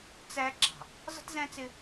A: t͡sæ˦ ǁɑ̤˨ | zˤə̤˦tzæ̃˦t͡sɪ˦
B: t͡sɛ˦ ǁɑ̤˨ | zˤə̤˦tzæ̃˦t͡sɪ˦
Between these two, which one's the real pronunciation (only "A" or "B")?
A